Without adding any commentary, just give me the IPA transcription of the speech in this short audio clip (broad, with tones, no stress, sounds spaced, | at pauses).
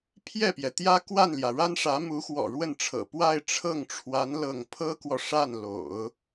pʰ j ɛ˥˩ p j ɛ˩ t̪ j ä˥ k w a˥˩ n l j ä˩ ɻ a˥ n ʂ ä˧˥ m u˧˥ x w ɔ̰˨˩ ɻ w ə˥˩ n ʈ͡ʂʰ ɤ̰˨˩ p w a˥˧ ɪ̯ ʈ͡ʂʰ ɤ˥˩ ŋ ʈ͡ʂʰ w a˧˥ n l ɤ˥˩ ŋ pʰ ɤ˥ k w ɔ˨ ʂ a˥˩ n l o̰˨˩˦ ʊ̯